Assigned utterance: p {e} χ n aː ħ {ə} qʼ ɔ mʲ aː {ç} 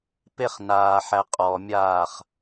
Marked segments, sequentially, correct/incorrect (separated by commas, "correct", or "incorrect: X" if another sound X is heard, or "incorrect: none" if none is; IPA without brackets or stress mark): correct, incorrect: æ, incorrect: χ